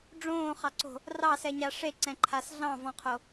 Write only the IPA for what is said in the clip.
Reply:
ɖ͡ʐõːχɑǀo̤ | rɑsɛɲa ʂeǀɛ̃ǃʰas ɮɑ̃vɔ̃qʰo

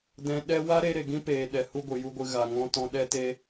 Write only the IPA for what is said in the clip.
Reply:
dɛ̃˧ ɗɛ˦ wa˦ɾe˧ ɾe˨ɡĩ˦peː˨ɗɛ˨ hu˦ɡʷɨ˨ju˦ɡʷɨ˧ ɣa˨ŋɔ̃˧ tɔ̃˧ɗɛ˦te˦

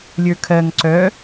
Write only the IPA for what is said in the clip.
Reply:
lʲə˞kʰɜŋ ǀœ

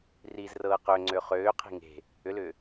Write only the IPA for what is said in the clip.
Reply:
riːzrɤːqøŋ͡ǀø χøːqʰi̤ ŋe̤ | ʏlʏː

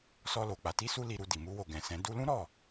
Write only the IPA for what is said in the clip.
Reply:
sɔ˧lo˨ k͡pa˨ti˧su˧ li˧ɾu˧di˨ mu˧wo˨ɡɛ̃˨sɛ̃˨˦ du˧lũ˦ ɾɔ˦˨

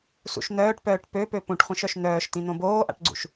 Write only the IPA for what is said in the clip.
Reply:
sṵʃn̪œːʈpœːʈ pøpø pũʈχʷĩʃœʃ n̪œːʃt̪ĩ n̪õboːʔa̰ʈɡ͡ǀṵʃ

